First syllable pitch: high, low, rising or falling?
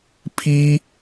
high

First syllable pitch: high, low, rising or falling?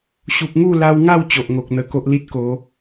low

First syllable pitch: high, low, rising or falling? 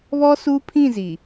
high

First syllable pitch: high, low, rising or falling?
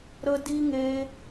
high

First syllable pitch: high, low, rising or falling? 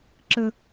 high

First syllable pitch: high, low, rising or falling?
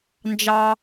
high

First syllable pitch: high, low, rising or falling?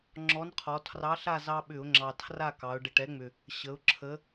rising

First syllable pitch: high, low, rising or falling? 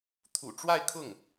low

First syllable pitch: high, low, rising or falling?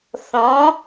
rising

